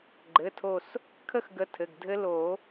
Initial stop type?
click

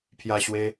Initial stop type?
aspirated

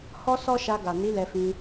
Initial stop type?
plain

